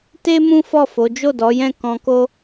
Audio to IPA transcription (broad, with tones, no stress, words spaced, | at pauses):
te˦ mũ˦ fɔ˦˨fo˨˦ d͡ʒo˦˨dɔ˨˦jɛ̃˦˨ kɔ̃˧ko˦